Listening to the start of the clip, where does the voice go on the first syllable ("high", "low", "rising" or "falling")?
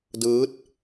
rising